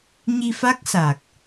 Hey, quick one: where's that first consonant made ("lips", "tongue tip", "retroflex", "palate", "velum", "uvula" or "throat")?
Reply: palate